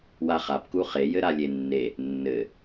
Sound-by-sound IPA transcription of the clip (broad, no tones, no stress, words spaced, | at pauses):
waχapku χejɘ ɾalʲenːe | nːɘ